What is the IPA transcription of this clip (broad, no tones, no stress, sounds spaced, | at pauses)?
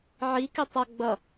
ʕ i k ɪ tˤ ʌ ɡ͡b ʌ